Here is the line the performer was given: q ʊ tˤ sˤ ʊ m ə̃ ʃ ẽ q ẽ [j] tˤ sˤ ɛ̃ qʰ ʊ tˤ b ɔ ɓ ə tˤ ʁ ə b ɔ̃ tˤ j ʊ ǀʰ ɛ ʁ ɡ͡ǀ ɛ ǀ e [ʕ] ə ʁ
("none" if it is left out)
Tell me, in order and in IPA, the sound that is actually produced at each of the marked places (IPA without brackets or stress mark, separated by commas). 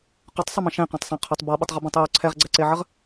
none, ʕ